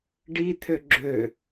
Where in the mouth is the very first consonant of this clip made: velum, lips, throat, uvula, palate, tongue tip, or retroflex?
retroflex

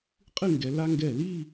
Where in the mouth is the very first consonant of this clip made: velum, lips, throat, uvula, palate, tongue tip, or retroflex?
uvula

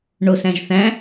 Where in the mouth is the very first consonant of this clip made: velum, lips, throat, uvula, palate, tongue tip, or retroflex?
retroflex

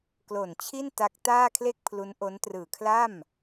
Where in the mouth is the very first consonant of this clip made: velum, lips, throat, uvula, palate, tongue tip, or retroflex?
velum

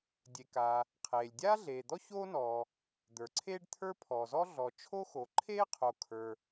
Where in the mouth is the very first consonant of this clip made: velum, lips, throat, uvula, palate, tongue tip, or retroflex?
tongue tip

